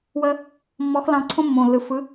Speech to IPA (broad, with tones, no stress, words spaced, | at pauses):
wəː˥ | mːɔ˧˥xlɑ̃˧˥ ǀʰõ˥mːõː˨lːɯ˨ fɯ˧˥